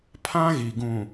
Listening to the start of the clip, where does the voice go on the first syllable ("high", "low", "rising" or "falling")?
high